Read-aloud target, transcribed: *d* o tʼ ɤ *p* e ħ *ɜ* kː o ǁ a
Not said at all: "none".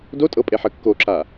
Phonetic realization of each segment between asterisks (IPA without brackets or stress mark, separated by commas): d, pʼ, ɜ